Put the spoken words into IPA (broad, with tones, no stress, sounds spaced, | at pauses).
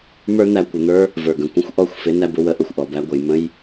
m ə˞˦ n̪ æ˧ kʷ ɪ˨ n̪ ə˞˦ | v ə˞˨ ɡ ə̃˨ kʷ ə̃˦ xʷ ʔ ɔ˧ xʷ f ɪ˨˦ n æ˧ b ʊ˧ w ə˧ ʔ ʊ˨ xʷ ʔ ɔ˨ b æ˧ ɡʷ ə˨ j m ə̃˦ j